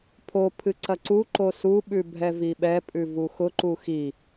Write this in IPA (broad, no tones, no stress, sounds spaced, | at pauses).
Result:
pʰ o pʰ ɨ ǀ ɐ ǀ u ǃ o s u ɓ ʉ bʱ ɛ v i ɓ ɛ pʼ ʉ v u x ʊ ǃ u x i